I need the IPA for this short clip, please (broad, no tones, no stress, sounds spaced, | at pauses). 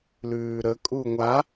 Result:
l ʉː ɾ ə kʼ u ŋʷ a